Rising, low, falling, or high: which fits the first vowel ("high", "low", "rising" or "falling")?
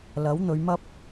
rising